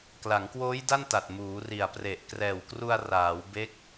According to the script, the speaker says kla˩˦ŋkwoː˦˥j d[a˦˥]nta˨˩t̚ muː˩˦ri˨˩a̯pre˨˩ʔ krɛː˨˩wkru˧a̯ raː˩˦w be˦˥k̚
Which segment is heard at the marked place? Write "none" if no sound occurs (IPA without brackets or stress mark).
a˥˩